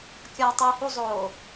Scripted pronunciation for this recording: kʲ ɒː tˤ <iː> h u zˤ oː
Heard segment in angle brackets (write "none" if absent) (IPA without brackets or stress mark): iː